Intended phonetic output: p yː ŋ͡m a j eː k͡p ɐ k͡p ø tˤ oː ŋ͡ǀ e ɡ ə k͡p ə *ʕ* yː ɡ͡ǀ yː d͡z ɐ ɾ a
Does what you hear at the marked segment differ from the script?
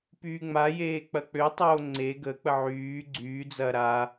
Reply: no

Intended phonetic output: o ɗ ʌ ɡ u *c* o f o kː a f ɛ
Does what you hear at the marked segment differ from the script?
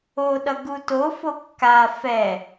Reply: yes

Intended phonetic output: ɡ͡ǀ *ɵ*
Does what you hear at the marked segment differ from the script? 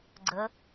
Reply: yes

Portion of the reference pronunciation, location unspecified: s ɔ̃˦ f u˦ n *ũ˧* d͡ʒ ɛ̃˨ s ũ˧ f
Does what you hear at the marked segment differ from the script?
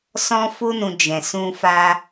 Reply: no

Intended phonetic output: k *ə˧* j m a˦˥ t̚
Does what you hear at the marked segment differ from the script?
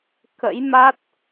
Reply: yes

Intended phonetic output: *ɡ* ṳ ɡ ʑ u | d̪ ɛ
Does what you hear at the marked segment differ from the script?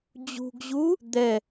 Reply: yes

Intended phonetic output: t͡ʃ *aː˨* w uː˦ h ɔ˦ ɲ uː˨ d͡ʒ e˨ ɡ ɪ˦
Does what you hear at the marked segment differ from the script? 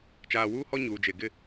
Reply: no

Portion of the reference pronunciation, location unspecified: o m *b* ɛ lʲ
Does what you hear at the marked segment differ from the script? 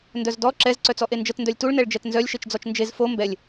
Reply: no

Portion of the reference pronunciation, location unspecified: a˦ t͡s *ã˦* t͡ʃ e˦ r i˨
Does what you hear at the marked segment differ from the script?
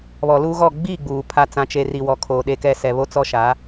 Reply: no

